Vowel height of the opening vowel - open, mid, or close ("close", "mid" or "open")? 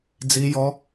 close